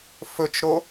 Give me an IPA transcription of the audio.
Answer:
f ɵ t͡ʃ ɾ o

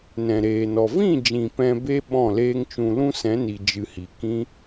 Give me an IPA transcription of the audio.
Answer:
n ɛ̃˨ ɾ eː˨ n ɔ˨ v ĩ˦˨ d͡ʒ ĩ˨ p ɛ̃˧ b e˦ ɓ ɔ̃˦˨ l eː˦ ŋ t͡ʃ ũ˧ l ũ˦ s ɛ̃˨˦ n i˨ d͡ʒ ɨ˧ h i˨ k ĩ˦

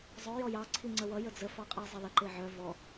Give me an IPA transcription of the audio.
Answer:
zˤ œ j ɔ j ɑ ǀʰ i ŋ͡ǀ ə w ʌ j ə d͡z ə f ɑ qʼ i zˤ e l ə ǃ e ʕ œ v ɔ

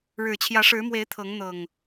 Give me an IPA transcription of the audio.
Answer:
ɻ ɻ̩˨˩ t͡ɕʰ j ä˨˦ ʂ ɻ̩˨˦ m w e˨˦ ɪ̯ t̪ʰ ɤ˨˦ ŋ n̪ ɤ˨˩ ŋ

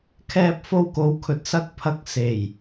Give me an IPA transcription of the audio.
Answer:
kʰ ɛː˧ p̚ f o˧ w k o˨ w kʰ ɵ˨ t̚ s ɐ˨˥ k̚ pʰ ɐ˨ k̚ s e˨˩ j

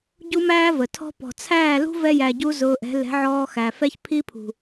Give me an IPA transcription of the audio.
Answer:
ɟ u˦ m æː˦ v ə˨ tʰ ɔ̤˦ p ɔ̤˨ t͡sʰ æː˦˨ l ṳ˦ v ɛ˧ j æ˨ ɟ u˧ z ʊː˧ ʔ ɛ̤˨˦ l ɛ̤˨˦ ʕ ɔː˧ x æ˨ f ɛ˦ ç pʰ i˦ pʰ ṳ˨

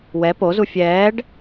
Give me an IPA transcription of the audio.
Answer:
w ɛ p o z u fʲ ɛː ɖ

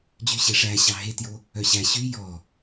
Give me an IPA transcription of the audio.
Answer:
d͡ʑ y ɕ e ʂ æ ɕ ɑ ɦ e t j o | œ ɕ æ ɕ y j ɔ

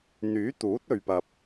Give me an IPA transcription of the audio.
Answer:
n̪ yː˨˥ t̪ uː˨˥ t̚ ɵ˨ ɥ p ɐ˨ p̚

